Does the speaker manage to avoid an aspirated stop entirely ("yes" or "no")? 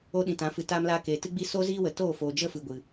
yes